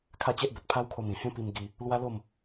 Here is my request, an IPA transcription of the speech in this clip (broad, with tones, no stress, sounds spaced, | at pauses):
kʰ a˥˧ t͡ɕ e˦ ʔ b ə˨ t̚ pʰ a˦ w kʰ o˧ m ĩ˨˩ h ẽ˦ p i˧ m ɡ i˧ | l w a˦ l o˥˧ m